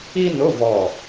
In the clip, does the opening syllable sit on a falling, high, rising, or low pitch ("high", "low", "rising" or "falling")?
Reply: high